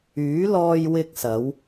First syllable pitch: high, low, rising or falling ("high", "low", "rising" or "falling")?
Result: rising